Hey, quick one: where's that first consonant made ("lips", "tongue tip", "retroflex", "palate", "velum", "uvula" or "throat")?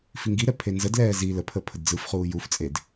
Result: lips